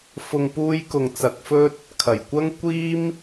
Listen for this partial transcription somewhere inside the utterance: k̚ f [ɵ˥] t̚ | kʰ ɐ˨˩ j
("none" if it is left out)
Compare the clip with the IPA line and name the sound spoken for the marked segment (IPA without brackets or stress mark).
ɵ˥